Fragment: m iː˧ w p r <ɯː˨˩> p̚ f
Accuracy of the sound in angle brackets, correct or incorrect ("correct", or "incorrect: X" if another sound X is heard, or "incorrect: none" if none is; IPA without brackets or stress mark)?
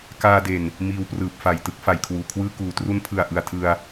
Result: correct